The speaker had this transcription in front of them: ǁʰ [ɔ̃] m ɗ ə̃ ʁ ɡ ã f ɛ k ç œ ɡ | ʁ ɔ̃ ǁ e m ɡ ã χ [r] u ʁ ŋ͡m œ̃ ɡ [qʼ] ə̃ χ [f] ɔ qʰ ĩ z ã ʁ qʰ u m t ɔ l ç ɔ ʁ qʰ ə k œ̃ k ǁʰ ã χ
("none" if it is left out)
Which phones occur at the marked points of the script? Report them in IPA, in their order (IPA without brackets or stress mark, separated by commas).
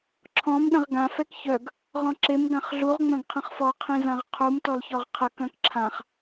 ɔ̃, ɮ, qʰ, f